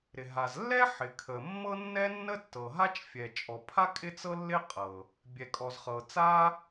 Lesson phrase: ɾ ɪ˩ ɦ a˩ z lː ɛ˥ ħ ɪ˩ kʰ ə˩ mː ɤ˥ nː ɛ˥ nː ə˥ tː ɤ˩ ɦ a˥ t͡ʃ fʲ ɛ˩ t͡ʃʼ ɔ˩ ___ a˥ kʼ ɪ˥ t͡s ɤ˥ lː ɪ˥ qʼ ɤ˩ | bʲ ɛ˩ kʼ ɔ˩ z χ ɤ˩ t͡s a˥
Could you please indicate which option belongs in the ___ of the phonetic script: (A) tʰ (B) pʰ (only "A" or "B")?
B